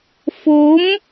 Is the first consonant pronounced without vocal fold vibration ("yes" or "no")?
yes